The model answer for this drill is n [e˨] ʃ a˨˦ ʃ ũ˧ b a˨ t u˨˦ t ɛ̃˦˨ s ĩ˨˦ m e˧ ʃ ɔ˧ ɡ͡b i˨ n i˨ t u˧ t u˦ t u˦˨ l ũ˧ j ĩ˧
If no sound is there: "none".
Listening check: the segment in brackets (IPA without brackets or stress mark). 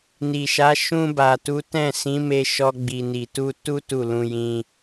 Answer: i˨